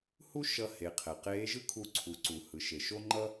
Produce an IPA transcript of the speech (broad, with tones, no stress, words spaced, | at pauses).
hu˥ʃʌ˧ he˩˧qʰɛ˩qeː˧˥ʒɯ˥ kʰu˧ǀʰu˩˧ǀu˩ hɯ˩˧ʃe˩ʃo˥ŋ͡ǃʌ˥